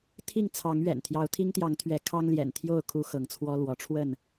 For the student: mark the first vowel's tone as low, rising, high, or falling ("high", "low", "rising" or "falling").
falling